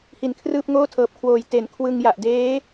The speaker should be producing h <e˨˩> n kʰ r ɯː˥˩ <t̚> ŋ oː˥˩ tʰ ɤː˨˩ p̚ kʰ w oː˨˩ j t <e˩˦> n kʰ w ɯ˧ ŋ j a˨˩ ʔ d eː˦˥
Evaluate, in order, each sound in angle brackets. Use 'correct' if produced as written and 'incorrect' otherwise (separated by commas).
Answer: incorrect, incorrect, correct